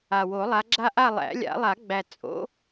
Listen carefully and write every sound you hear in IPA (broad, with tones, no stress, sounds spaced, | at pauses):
a˨˩ w o˨˩˦ lˠ a˨˦ ɡ͡ǁ a˦ ʔ a˦˨ lˠ æ̰˨˩˦ lʲ a̰˨˩˦ lˠ a˨˩˦ ɡ͡b æ˨˩ t͡sʼ o̰˨˦